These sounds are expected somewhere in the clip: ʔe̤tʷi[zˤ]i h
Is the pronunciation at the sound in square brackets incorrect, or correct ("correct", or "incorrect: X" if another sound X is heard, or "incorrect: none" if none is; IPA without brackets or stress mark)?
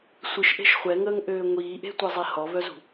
correct